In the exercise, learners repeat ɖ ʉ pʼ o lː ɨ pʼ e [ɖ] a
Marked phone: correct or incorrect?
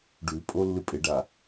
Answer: correct